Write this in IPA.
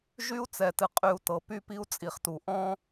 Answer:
ʒ y˦ u̯ t͡s ɛ˨ t ɨ˨ qʼ y˨ u̯ t ɤ˨ p y˦ p i˦ u̯ t͡sʼ i˨ χ t u˨ ʔ ɔ̃˦

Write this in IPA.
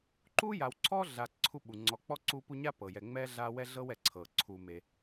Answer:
ǃ u˥ j a˨ w ǀʰ ɔ˥ ɮ a˨ ǀʰ u˦ ɓ u˩ ŋ͡ǀ ɔ˨ k͡p ɔ˥ ǀ u˦ p u˦ ɲ a˥ p ɤ˩ j ɛ˨ ŋ͡m ɛ˥ ɮ a˦ w ɛ˥ ɮ ɤ˥ w ɛ˩ ǀʰ ɤ˩ ǀʰ u˨ m e˨

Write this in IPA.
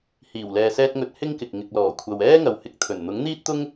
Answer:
h iː˨˩ w l ɛː˨ s ɛː˧ t̚ ŋ ɵ˨˥ t̚ h ɪ˥ ŋ k ɪ˨ k̚ ŋ ɪ˨ k̚ l ɔː˨˩ kʷʰ ɐ˨ w ɛː˥ ŋ ɐ˨ w h ɪ˧ k̚ t̪ʰ ɵ˨˩ n n̪ ʊ˨˥ ŋ n̪ iː˥ t̚ t̪ ʊ˥ ŋ

